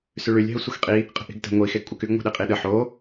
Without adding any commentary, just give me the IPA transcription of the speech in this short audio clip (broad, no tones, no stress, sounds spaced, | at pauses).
s y ɭ y lʲ ɦ ə sʷ ə x qʼ i | qʼ ə̤ ʔ i̤ ɡ t ə̤ ŋʷ i x e ɡ kʷʼ ə k y ɡ ŋʷ e̤ ɗ e qʼ i ɗ ə ħ o